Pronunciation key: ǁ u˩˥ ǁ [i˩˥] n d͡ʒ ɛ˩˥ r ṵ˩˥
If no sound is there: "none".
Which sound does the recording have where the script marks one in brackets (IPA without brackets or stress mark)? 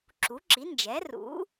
i˩˥